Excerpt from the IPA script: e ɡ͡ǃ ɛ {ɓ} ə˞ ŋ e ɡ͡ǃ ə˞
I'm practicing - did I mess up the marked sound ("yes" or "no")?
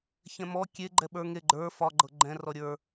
no